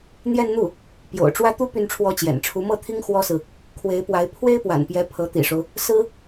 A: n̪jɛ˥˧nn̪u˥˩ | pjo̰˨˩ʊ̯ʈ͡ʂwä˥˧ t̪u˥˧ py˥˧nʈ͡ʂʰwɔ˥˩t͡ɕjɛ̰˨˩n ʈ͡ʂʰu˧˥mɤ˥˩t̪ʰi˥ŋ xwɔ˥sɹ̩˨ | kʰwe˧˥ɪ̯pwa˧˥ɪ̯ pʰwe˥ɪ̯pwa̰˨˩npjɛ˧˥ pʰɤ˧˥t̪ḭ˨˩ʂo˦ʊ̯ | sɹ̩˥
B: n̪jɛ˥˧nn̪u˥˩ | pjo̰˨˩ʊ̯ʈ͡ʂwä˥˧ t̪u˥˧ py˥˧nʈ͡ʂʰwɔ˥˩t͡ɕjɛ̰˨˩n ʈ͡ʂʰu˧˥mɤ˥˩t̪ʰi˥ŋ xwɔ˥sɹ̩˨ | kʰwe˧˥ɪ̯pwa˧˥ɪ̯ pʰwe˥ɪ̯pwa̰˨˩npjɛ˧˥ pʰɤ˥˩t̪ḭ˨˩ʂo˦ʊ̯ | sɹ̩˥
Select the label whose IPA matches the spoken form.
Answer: A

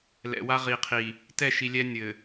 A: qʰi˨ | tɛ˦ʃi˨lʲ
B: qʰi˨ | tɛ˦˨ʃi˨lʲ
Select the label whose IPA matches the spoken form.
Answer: B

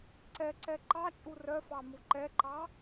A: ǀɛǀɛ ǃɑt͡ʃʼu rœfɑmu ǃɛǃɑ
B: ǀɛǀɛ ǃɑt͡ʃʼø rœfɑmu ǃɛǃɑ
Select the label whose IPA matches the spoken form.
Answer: A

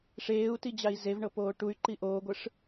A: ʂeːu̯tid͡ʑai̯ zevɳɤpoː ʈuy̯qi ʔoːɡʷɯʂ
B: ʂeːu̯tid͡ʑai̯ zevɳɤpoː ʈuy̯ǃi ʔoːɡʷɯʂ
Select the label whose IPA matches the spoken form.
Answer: B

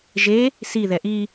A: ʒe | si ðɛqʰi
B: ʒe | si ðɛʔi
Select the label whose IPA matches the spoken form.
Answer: B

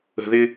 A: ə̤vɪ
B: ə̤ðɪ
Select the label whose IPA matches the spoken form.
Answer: B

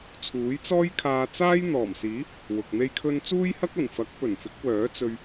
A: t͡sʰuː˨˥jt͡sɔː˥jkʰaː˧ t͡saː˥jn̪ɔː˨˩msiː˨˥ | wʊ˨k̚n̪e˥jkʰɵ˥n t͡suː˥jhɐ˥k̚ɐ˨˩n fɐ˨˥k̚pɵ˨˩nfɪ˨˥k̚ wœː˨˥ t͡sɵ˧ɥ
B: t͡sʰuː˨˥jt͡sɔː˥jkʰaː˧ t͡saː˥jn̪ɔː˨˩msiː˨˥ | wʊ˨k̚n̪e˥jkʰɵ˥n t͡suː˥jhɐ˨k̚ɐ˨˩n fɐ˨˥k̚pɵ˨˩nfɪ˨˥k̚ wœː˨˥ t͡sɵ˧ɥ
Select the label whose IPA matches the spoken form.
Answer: A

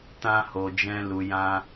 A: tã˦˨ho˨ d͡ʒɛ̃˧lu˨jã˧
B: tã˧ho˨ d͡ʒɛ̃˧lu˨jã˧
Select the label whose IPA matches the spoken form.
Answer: B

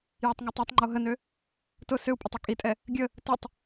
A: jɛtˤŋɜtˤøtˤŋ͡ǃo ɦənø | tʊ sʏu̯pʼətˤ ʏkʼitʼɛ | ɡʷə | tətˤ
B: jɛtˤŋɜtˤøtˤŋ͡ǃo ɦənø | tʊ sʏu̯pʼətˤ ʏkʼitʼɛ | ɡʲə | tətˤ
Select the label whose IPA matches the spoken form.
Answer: B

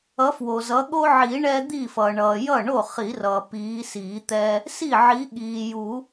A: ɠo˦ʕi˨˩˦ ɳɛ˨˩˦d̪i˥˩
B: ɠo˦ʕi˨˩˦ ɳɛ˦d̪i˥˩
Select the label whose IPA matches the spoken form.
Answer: B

